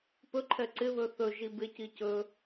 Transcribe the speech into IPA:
p ɵ ǃʰ ɛ ǀ ɪ β ɵ θ ɵ ʒ i b ɪ c i c ɵ

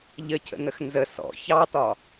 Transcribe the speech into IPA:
ʎ ə cʰ ə̰ n ə x n z ə s ɔ̰ ç ɑ t ɒ

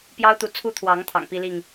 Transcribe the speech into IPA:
p j ɑ˦ ʊ̯ t̪ u˨ t͡sʰ u˦ t̪ʰ w ɑ˨˦ ŋ t̪ʰ ɑ̰˨˩ ŋ p i˦ l i˥˨ ŋ

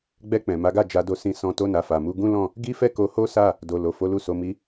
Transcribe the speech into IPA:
ɡ͡b ɛ˧ k͡p ɛ̃˨ m a˨˦ ɡ a˦˨ d͡ʒ a˧ d o˧ s ĩ˧ s ɔ̃˧ t o˦ n a˧ f a˨ m u˧ ɡ ũ˦ l ɔ̃˦˨ | ɡ i˦ f ɛ˦ k o˧ h o˦ s a˦˨ | d o˨ l o˨ f o˨˦ l u˦˨ s o˧ m i˧

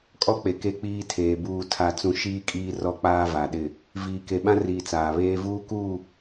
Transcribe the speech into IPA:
kʼ ɔ˦ k͡p e˨ k e˦ k͡p iː˦ tʰ eː˨ b uː˨ tʰ a˨ t͡s ũ˨ ʃ iː˦ kʼ iː˦ r ɔ˦ k͡p aː˦ v a˨ ɗ ɪ˦˨ | v iː˨ k e˨ ɓ ã˦ r iː˨ t͡s aː˨ β eː˦ v uː˦ k uː˦˨

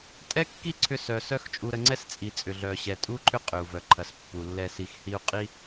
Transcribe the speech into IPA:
tʼ ɛ˦ kː i˦ ǀʰ ʏ˦ s œ˧ s œ˦ x t͡ʃʼ u˧ ɾ ə˧ ŋ͡ǀ ɛ˦ s t͡sʼ i˨ t͡sʼ ʏ˨ ɮ œ˨ ɕ ɛ˨ tʼ u˦ ǃʰ ʏ˦ qʼ ʏ˨ u̯ v œ˨ ǃʰ ɐ˨ s pː u˨ lː ɛ˨ s i˨ x h i˧ u̯ qʼ i˦

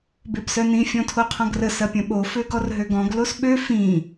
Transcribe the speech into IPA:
b e b s œ n ĩ fʲ ɔ̃ tʰ o qʰ ɔ̃ ɡ r ə s ɐ pʲ ɐ̃ ɓ o f ø ɡ ɔ r ɦ ø ɡ ɔ̃ ɡ l o s ɓ ø f ĩ

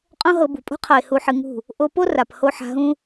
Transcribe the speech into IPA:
qʼ õ˦ ɦ ɤ˧ b ṳ˨ pʼ ṳ˧ qʰ ɤ˨ ɪ̯ h u˧ ħ ɨ˧ ŋ ṳ˦˨ | ʔ o˧ p o˦ r a˨ p h o˧ ħ a̤˧ ɦ ũ˦

